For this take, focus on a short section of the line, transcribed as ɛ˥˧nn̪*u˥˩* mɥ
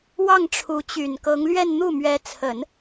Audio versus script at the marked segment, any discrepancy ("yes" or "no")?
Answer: no